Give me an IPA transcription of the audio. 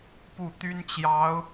pu˥˩t̪y˥nt͡ɕjɑ˧˥ʊ̯

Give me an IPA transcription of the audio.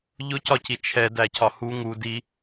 ʎʊcɒci t͡ʃʰɛdæcʰɒ hu ŋu di

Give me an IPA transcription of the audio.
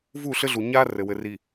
vu˦˨ɬɘ˦ɮu˨ ɲa˦ rɘ˨wɘ˨ ri˨

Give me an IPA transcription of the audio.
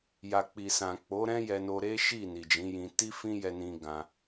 ja˨k͡pi˨sã˨ k͡po˨˦ɾɛ̃˦ jɛ˧no˧ ɾe˦ʃi˦˨ ni˨d͡ʒĩ˨˦jĩ˧ ti˦fĩ˦jɛ˧nĩ˧ ɡã˧

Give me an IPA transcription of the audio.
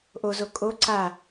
ʔozo kʼo ǀa

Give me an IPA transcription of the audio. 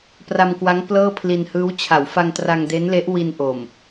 pra˧mkwa˦˥ŋ plɤː˥˩pʰli˧nhɯː˦˥w t͡ɕʰa˩˦wfa˧ŋtra˧ŋ de˦˥nle˦˥ʔ wi˧nʔo˨˩m

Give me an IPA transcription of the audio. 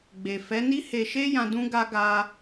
ɡ͡be˨fɛ˨˦ ni˦he˧ ʃe˦jã˧ dũ˦ɡa˦ ɡa˦

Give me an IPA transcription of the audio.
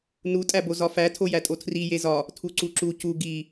nutʼæbo zɒfæ tʰojætʼotʰri jezɒ | tʰuǀuǁu cu ɡi

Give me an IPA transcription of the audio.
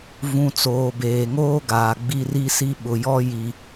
vũ˨ t͡soː˨beː˨ŋoː˦ɡaː˨ ɡ͡bi˦ri˦si˦ ɓʊ˨jɔ˦ ji˦

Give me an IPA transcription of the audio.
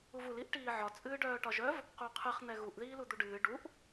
uvul iʔʈiːʕɒ t͡sʼɨːɖœːʈɒʒœv | quqʰɨχ n̪ɛɣuʔ ðiːlud̪uɖɨː ɖuʔ

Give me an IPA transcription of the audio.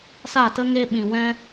sa˦˨tə˦ ŋe˧ɓĩ˨wɛ̃˧

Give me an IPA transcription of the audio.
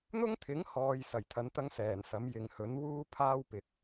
n̪ʊ˥ŋt̪ʰɪ˨˥ŋhɔː˨j sɐ˨˩j t̪ʰɐ˨˥nt̪ɐ˥ŋsɛː˨˩nsɐ˨˥m jɪ˨˧ŋhɵ˨˥n wuː˥ pʰaː˥wpɪ˨k̚

